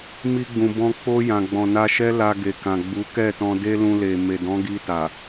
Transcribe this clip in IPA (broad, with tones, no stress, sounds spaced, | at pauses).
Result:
m i˧ ɡ͡b ũ˨ b ɔ̃˧ k͡p o˧ j ã˨ ɡ͡b ɔ̃˨ n a˧ ʃ ɛ˦ l a˧ ɡ e˨ k ã˨ ɡ͡b u˨˦ k ɛ˦˨ t ɔ̃˧ d e˦ l ũ˧ l e˨ m e˨ d ɔ̃˨˦ ɡ i˧ t a˨